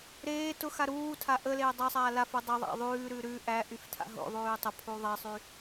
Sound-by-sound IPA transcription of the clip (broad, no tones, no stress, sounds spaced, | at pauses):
ɾ eː t ʊ x a ɾ uː tʰ a ʔ ə l eː dˤ æ sˤ aː l a f u dˤ ə ðˤ æ̰ ðˤ ʉː ɾ ʉ ɾ ʉ ʔ æ ʔ y f tʰ a̰ ɦ o̰ ðˤ ʉː tˤ ə pʰ u ðˤ e sˤ y